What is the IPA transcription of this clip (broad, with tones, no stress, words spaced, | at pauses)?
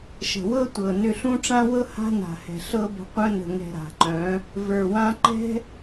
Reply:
ʃə̤˨wɤ˦tʷɤ˨nʏ˧ ɬũ˦ʈ͡ʂã˦wɤ˦ ha̤˦na̤˨hɛ̤˨ ɬɤ˦bə̤˧ qʷœ̃˧nə̤˨ŋɛ̤˨ ɾa̤˨ǃœ̃˨˦ | və˞˨wã˧ǃɛ̤˦